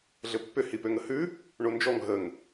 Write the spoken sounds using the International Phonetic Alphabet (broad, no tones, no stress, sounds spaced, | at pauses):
ɮ ɘ pː ʏ h i p ø ŋ ə h ʉ | ɳ o n d͡ʒ ɔ ŋ ɦ ə ŋ